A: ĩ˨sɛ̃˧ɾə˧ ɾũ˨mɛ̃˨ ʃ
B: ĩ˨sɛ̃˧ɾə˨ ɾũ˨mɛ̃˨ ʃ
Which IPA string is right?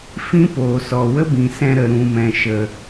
B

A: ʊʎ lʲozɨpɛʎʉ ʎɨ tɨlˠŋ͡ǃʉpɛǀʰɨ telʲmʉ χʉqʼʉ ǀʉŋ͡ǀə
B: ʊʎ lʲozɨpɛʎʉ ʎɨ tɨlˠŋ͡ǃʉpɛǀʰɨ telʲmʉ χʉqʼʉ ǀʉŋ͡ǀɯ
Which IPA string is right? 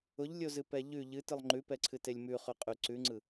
B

